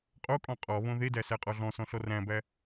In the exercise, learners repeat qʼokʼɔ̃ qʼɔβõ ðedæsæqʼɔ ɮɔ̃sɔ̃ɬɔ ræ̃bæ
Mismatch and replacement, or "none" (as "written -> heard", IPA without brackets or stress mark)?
none